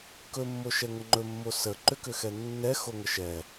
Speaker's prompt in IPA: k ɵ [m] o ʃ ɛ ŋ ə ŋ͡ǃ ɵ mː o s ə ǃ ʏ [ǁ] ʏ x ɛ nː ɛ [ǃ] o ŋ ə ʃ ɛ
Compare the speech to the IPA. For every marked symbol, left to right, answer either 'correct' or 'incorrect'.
incorrect, incorrect, incorrect

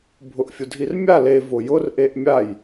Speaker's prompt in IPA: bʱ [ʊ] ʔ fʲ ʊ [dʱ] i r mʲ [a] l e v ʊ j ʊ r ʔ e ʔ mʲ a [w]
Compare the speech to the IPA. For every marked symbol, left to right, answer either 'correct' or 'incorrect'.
correct, correct, correct, incorrect

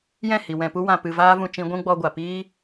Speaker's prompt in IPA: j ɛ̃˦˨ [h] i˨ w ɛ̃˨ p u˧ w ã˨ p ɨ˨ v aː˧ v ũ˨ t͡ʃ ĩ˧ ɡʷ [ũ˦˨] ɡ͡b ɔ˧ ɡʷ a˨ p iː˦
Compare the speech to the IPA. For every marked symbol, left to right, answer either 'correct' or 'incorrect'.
correct, incorrect

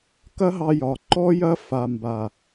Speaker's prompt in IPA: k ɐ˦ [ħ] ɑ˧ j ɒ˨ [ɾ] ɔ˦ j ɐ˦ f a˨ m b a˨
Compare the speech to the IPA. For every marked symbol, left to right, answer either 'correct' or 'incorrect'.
incorrect, incorrect

